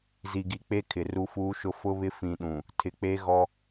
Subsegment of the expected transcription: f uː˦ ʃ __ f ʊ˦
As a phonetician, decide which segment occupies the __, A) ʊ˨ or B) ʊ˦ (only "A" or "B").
B